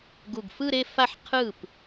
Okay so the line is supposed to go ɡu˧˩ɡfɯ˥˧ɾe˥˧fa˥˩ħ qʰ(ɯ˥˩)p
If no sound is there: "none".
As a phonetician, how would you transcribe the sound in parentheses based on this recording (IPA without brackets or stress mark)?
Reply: ɯ˥˩